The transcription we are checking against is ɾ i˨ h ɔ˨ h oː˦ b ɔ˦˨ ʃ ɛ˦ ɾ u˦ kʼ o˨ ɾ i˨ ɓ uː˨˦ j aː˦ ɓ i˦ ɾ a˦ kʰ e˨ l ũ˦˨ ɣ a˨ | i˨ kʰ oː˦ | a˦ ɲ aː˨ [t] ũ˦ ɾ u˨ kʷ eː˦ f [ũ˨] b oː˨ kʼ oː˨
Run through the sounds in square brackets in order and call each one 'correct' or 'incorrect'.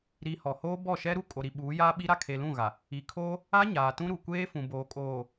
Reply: correct, correct

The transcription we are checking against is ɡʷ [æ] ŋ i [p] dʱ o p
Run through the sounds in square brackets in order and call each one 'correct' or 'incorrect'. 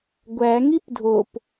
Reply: correct, correct

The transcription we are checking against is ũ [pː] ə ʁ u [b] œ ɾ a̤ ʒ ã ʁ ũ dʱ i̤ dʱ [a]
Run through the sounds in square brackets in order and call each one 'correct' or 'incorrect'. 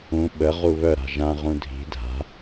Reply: incorrect: ɓ, incorrect: β, incorrect: a̤

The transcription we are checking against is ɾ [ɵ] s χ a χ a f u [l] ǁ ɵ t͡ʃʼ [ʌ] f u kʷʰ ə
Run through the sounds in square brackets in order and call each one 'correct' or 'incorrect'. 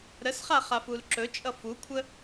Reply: incorrect: ə, correct, correct

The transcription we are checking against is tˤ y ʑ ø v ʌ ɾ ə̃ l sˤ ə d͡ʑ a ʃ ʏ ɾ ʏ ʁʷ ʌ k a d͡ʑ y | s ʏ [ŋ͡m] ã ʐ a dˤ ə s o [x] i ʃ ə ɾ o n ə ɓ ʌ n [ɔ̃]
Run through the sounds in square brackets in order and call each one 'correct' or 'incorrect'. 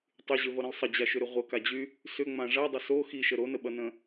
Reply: correct, correct, incorrect: ə̃

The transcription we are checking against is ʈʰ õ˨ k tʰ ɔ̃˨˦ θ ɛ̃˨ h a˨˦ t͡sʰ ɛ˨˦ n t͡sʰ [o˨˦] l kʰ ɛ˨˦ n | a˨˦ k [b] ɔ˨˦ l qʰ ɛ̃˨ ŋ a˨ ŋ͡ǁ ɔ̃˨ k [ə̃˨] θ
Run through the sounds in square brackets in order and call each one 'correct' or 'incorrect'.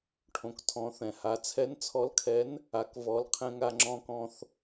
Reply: incorrect: ɔ˨˦, incorrect: v, incorrect: ɔ̃˨

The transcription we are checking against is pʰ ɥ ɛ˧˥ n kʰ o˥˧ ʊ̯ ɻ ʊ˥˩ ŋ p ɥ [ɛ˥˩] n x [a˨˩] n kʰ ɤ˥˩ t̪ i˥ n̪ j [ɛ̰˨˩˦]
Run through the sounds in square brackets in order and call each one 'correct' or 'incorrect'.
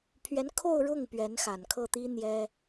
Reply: incorrect: ɛ˧˥, correct, incorrect: ɛ˥

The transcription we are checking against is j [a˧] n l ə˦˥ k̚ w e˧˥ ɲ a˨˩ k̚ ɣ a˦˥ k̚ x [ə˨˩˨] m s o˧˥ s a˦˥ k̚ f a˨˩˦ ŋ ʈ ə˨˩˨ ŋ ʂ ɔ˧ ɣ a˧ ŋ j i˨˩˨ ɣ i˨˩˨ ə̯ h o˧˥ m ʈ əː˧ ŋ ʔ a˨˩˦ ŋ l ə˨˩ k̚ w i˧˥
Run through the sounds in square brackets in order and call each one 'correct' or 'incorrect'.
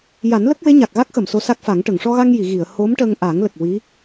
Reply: incorrect: a˨˩˦, correct

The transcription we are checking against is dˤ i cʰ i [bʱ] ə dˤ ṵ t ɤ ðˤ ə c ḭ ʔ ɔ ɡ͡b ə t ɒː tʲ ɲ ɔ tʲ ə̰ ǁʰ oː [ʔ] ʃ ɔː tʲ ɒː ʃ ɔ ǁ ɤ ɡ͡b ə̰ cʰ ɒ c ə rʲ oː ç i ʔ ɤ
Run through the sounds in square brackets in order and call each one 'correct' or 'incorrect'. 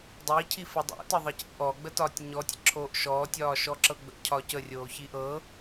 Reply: incorrect: f, correct

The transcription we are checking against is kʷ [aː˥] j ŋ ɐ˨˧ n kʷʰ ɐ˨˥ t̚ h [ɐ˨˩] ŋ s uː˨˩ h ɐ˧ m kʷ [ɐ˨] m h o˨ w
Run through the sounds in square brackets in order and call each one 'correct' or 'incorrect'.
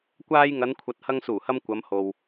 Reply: incorrect: aː˧, incorrect: ɐ˧, incorrect: ɐ˨˧

